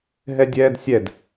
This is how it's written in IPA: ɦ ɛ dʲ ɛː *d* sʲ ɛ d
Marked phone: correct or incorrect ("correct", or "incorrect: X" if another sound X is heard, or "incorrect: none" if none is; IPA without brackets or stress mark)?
correct